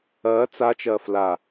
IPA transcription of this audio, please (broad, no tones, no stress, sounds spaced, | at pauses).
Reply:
ɐː t͡s a t͡ʃ ɐː f l a